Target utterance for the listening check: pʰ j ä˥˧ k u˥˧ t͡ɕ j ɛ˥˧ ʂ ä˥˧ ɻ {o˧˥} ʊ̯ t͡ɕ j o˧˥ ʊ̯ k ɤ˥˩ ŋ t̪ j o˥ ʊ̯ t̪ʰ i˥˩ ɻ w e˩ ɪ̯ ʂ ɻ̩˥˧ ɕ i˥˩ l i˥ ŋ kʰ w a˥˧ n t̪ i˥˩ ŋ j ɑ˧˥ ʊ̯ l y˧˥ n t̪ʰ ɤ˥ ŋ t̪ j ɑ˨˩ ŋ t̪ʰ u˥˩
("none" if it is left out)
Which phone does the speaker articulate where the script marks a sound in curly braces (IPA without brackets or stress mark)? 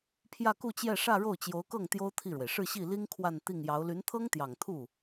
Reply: o˥˩